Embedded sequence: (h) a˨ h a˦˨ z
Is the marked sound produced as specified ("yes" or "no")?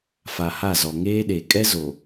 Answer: no